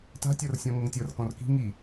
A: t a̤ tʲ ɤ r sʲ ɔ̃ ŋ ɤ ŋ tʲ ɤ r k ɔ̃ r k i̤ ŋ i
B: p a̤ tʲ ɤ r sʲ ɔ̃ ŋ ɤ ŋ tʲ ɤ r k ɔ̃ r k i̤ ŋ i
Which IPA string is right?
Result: A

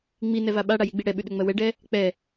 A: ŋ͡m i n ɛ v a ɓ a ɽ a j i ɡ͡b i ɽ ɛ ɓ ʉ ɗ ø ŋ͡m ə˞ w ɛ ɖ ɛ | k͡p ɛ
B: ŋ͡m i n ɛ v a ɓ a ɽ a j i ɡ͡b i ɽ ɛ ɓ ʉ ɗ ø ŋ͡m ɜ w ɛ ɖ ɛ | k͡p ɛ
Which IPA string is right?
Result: B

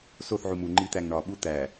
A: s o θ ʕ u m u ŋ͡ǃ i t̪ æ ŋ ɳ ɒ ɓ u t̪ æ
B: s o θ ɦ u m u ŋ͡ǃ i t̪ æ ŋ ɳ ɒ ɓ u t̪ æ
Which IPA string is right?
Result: A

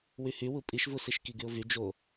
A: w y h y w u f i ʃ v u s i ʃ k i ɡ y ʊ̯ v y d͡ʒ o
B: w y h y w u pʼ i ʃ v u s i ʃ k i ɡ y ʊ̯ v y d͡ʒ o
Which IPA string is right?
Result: B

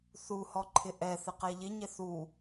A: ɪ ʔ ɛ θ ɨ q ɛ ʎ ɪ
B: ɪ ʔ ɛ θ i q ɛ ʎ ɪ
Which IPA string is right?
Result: A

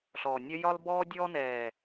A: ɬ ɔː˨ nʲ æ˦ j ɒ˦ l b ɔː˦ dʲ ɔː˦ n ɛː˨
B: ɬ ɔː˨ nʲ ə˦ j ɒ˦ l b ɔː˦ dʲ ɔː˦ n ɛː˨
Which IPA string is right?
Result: B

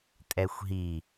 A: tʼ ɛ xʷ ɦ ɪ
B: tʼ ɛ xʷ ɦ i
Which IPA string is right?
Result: B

